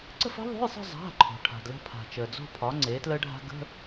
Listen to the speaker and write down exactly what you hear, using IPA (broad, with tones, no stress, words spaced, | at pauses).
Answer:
ǀə̤˥˧fə̤˦˥ðˤo̤˧˥˧jsˤə̤˥˧ zˤa̤˩˧˩ ǃʰo̤˩ʈʰa̤˩dlə̤˥˧pʰa̤˩ t͡ʃəː˩ d͡zo̤˥˧pʰɒ˩˥ ŋ͡ǀeː˩˥tləː˦˥ɖʱa̤˦˥ ɡə̤˧˥˧